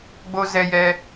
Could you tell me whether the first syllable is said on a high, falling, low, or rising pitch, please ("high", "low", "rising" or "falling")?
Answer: high